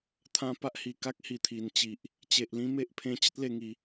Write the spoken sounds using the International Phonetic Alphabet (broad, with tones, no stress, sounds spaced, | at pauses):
t̪ʰ ã˦ p a˦ ʔ h i˨˩ k a˦ k̚ h i˨˩ t̪ʰ i˨˩ n t͡ɕ i˨ ʔ | t͡ɕ e˨ ʔ l ĩ˦ m e˦ ʔ pʰ ẽ˧ t͡ɕ ə˦ t̚ l e˧ ŋ i˨˦